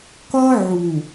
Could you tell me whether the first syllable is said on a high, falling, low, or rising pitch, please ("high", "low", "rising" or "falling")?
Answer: high